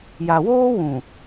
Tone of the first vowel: low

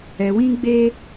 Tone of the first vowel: low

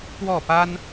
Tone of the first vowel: falling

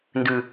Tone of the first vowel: low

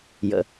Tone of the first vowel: low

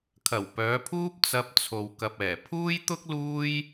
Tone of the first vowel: low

